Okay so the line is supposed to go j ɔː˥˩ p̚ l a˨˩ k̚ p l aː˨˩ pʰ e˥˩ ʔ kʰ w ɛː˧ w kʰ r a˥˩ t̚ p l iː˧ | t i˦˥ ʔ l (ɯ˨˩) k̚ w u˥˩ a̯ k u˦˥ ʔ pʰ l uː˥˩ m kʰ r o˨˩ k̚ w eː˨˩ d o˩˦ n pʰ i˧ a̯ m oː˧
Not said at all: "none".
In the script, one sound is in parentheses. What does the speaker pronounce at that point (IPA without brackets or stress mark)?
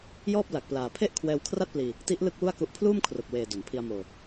ɯ˥˩